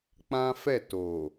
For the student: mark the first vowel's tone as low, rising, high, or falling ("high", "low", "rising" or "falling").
high